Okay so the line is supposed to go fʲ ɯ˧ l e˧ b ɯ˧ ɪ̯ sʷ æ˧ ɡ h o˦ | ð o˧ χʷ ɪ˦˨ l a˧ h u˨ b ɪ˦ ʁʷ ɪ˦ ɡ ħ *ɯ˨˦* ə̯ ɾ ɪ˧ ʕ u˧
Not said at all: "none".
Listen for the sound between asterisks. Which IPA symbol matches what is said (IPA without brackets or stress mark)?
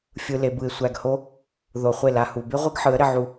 ɯ˨˦